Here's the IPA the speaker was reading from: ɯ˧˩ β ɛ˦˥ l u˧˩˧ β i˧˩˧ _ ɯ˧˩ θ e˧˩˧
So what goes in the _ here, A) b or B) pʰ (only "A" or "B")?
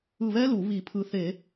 B